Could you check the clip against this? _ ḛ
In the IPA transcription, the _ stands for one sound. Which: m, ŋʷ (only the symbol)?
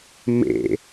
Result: m